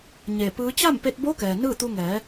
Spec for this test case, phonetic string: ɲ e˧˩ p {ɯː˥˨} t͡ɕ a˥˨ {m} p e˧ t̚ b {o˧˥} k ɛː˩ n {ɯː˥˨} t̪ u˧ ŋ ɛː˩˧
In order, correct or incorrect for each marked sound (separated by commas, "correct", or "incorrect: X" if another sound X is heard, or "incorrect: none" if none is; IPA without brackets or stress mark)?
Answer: incorrect: ɯː˧˥, correct, correct, correct